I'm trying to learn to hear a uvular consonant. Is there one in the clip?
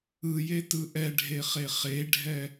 yes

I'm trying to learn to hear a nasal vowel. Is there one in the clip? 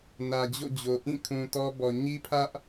yes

